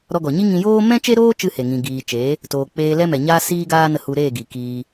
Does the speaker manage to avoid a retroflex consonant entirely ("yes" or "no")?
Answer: yes